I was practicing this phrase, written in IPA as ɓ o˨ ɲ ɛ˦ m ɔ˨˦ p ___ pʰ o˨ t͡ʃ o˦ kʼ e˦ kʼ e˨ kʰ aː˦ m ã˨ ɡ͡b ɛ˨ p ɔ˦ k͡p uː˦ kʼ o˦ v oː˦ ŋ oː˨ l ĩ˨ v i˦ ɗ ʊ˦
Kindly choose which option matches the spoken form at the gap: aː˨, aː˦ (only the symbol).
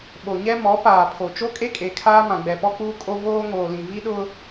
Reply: aː˨